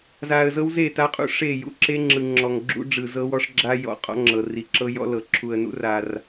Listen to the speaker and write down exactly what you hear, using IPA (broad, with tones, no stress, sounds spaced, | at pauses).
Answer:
z a˨ ə̯ z ɤ˦ w z e˦˨ t a˦ qʼ ṵ˦ ʂ e˦˨ j ṵ˦ ǁ e˦ ŋ͡ǁ ɯ˨ ŋ͡ǁ ɔ˨ ŋ ɡ͡ǁ ṵ˦ ɖ͡ʐ ɯ˨ z ɤ˦ w ɔ˦ ʂ ɡ͡ǁ a˦ j ɔ̰˨ qʼ ɔ̰˦ ŋ͡ǁ ɤ˨ r i˨ ǁ ɤ˦ j ɔ̰˦ l ɤ˨ ǁʰ u˨ ə̯ n ṵ˦ r a˦ r